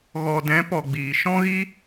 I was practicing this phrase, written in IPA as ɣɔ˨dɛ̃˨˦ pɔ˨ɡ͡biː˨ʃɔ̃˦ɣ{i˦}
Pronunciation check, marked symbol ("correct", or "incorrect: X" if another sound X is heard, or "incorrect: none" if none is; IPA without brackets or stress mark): correct